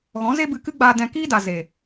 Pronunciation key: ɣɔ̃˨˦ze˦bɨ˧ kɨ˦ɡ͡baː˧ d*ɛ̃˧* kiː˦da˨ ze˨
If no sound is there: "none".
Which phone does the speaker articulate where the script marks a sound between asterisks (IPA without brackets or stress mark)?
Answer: ɛ̃˧